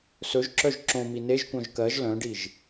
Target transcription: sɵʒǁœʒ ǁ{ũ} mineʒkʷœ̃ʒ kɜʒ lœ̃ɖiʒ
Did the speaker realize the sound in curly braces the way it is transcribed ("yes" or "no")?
no